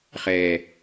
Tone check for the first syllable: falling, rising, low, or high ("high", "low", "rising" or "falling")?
low